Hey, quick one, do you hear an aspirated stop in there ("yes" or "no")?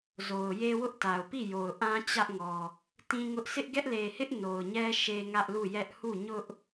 no